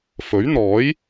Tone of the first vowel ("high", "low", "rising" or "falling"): rising